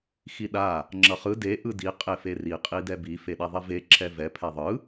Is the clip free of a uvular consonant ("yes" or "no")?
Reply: no